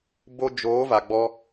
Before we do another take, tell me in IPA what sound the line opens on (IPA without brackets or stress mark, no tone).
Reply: b